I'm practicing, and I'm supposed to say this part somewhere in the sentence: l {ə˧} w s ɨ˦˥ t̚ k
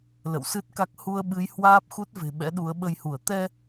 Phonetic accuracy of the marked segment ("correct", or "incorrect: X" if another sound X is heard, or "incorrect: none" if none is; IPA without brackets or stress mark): incorrect: ə̰˧˨